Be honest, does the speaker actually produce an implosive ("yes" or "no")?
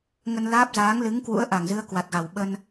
yes